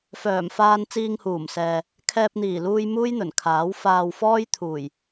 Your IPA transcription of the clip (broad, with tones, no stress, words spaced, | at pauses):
fœː˨˩mfaː˧n t͡siː˧ŋhuː˨˩msɛː˨ | kʰɛː˧p̚n̪iː˨˩luː˧j muː˥jn̪ɵ˨˩nkʰaː˨˥w faː˨w fɔː˥j t̪ʰuː˨˩j